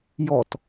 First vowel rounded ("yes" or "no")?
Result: yes